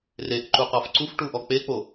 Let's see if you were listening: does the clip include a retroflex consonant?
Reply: yes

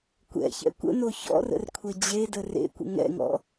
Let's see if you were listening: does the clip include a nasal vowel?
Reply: no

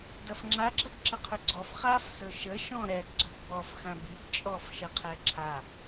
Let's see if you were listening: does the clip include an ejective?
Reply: yes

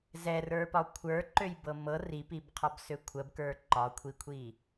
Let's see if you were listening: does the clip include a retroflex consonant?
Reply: no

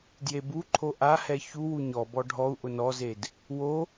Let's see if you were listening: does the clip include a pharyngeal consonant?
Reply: no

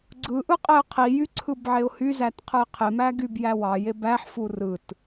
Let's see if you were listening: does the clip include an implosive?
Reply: no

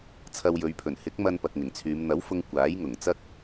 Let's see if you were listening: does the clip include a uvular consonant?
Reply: no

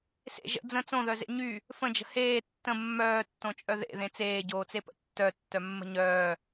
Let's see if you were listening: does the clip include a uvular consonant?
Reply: no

